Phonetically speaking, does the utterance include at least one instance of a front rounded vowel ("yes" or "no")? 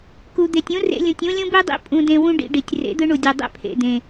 no